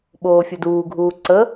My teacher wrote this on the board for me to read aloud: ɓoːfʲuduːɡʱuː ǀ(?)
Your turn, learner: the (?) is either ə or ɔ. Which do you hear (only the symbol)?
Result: ə